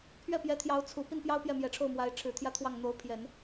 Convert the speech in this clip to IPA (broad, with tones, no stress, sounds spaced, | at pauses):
pʰ ɥ ɛ˥˩ p j ɛ˧˥ t̪ʰ j ɑ˧˥ ʊ̯ t͡sʰ u˨˩ p i˥˩ n p j ɑ˥ ʊ̯ p j ɛ˥˩ m j ɛ˨˩ ʈ͡ʂʰ o˥˩ ʊ̯ m w a˧˥ ɪ̯ ʈ͡ʂʰ ɻ̩˨˩ t̪ʰ j ä˥ t̪ʰ w ɑ˥˩ ŋ n̪ o˧˥ ʊ̯ pʰ j ɛ˨˩˦ n